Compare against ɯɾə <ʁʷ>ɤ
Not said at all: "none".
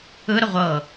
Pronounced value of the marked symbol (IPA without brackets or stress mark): ʁʷ